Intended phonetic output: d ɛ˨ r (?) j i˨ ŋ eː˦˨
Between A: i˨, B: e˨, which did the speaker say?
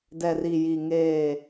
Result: A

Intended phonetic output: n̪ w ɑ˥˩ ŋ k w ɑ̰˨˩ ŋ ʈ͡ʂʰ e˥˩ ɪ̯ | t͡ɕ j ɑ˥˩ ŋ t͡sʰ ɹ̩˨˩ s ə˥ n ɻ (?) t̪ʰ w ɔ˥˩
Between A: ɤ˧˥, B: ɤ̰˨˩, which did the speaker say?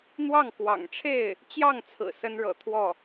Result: B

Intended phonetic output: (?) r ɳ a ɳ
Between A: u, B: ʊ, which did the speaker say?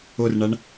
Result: B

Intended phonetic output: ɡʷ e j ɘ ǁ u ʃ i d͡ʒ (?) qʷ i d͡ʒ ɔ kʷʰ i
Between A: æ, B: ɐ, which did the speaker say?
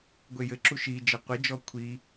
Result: B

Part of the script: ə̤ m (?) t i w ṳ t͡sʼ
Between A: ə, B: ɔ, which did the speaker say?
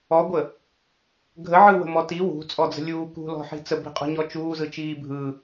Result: B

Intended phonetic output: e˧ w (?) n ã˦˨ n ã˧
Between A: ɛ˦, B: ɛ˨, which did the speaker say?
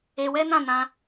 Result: A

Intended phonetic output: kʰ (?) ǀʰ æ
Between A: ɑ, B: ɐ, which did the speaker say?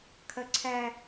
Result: B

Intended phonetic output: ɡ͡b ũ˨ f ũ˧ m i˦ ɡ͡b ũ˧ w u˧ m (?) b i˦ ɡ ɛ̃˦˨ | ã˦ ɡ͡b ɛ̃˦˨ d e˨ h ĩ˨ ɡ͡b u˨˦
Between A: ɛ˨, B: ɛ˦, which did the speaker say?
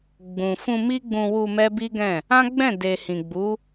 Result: B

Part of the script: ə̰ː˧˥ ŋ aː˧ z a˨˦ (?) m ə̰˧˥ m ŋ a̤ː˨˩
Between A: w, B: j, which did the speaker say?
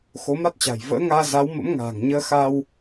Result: A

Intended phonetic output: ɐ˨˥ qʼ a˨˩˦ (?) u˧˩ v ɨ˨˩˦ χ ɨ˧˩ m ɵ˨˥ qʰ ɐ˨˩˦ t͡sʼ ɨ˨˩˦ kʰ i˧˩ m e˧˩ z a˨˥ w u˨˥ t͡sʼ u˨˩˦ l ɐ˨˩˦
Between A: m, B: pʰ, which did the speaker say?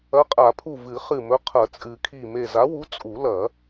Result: B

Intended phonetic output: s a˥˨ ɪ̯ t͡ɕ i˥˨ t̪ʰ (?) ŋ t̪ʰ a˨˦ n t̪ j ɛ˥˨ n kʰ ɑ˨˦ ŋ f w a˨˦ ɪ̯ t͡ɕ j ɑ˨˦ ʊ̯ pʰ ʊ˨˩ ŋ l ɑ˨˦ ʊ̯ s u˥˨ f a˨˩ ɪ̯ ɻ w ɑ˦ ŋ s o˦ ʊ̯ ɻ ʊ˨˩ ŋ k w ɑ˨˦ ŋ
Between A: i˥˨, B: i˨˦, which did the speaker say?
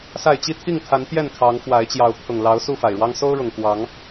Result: A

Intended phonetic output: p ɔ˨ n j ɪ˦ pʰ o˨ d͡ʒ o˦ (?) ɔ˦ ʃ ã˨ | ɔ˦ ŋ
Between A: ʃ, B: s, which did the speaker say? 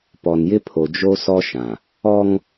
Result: B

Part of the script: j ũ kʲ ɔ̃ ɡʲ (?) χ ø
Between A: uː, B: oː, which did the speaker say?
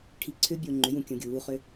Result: A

